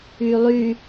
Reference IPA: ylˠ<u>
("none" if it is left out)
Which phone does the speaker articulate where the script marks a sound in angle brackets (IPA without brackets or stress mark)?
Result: y